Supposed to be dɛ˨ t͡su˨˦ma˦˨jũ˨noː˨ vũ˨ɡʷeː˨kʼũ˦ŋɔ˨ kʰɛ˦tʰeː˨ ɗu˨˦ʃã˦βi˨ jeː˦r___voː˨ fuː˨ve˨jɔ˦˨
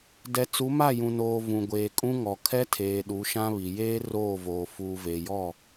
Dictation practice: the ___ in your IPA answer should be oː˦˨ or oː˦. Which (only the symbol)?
oː˦˨